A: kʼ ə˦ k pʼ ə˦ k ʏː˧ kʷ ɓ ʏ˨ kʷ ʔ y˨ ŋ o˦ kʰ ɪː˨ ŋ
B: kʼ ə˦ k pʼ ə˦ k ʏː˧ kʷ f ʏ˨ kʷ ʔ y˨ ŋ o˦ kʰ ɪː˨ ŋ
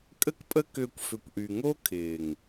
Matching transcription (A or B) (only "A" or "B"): B